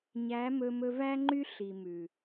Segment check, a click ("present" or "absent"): present